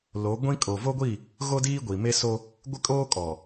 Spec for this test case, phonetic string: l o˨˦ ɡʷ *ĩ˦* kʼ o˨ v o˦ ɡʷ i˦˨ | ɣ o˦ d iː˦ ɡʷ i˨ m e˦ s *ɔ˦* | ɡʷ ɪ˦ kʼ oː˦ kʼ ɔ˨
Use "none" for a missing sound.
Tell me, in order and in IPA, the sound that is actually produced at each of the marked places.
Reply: ĩ˦, o˦

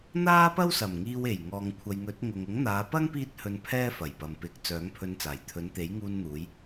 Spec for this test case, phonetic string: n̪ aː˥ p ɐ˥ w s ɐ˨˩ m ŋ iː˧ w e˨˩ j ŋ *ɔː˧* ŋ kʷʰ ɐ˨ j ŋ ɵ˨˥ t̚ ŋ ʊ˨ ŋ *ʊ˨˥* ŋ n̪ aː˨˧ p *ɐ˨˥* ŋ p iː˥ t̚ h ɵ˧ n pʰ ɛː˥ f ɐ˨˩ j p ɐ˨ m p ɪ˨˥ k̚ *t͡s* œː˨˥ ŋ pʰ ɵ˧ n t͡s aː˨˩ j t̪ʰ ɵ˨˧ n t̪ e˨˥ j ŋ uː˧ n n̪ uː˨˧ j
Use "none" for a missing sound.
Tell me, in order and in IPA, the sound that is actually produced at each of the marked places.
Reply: ɔː˨, ʊ˨˥, ɐ˥, t͡s

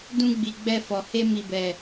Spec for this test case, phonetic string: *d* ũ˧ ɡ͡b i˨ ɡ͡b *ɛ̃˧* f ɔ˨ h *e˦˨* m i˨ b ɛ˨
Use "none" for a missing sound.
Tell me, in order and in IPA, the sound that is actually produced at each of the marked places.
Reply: d, ɛ˧, e˧

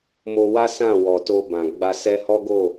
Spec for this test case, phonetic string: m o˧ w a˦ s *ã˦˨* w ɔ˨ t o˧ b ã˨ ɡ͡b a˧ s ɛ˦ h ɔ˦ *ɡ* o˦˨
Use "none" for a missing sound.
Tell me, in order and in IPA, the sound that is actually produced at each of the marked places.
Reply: ã˦˨, ɡ

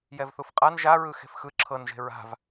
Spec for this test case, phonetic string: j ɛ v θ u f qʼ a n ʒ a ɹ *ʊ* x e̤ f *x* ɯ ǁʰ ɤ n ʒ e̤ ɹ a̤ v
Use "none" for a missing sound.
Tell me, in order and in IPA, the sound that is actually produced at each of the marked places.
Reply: ɯ, x

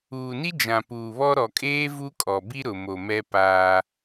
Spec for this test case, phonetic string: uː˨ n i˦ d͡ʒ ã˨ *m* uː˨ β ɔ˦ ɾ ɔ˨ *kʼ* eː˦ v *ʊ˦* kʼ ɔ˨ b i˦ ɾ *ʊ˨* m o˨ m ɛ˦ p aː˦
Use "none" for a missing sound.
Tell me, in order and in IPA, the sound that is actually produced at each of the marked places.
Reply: p, kʼ, u˦, ʊ˨

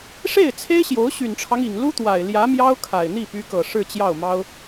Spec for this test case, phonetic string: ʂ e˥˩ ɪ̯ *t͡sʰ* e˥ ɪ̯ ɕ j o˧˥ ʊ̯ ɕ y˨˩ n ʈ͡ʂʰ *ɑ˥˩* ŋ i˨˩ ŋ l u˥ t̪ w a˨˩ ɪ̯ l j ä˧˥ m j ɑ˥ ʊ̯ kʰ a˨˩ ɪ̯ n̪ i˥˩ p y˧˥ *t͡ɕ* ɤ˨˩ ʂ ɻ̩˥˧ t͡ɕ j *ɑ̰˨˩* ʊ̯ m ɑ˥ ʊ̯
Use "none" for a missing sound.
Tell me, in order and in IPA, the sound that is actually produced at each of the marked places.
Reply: t͡sʰ, ɑ˦, k, ɑ˥˩

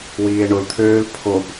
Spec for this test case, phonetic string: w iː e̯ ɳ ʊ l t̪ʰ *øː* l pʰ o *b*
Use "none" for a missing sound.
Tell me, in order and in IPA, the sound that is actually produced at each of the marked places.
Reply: øː, b

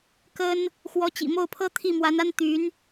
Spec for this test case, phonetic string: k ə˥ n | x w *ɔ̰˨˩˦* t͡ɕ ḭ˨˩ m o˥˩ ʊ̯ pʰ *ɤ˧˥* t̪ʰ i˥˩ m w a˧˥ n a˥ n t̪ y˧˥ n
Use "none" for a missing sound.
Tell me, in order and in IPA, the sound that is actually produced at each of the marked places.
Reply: ɔ˧˥, ɤ˥

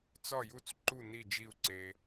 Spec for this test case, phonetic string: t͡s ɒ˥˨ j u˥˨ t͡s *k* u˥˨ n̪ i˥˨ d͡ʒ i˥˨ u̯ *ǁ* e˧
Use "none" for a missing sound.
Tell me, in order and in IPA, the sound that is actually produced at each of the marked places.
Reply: ǃ, ǀ

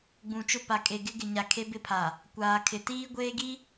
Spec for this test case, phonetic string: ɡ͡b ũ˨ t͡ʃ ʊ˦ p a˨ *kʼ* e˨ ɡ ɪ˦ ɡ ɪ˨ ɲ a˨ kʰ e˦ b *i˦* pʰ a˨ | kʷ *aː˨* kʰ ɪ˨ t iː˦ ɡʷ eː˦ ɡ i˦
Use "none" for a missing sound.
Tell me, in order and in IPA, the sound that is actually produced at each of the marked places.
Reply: kʼ, ɪ˦, aː˨

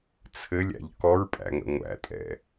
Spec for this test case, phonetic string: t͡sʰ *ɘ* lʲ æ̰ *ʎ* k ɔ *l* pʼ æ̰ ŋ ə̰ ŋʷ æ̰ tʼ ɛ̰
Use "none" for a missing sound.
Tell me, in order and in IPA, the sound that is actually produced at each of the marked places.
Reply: ɘ, ʎ, ɹ

